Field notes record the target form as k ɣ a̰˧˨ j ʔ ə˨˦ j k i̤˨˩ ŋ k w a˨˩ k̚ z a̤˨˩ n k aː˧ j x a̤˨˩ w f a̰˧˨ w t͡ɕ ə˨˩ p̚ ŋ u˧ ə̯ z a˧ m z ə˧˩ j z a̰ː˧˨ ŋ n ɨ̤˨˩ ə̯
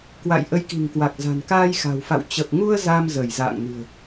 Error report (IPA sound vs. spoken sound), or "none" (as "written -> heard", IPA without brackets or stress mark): ɣ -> w